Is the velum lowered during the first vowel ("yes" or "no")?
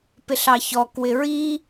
no